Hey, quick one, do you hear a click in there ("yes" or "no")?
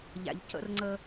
yes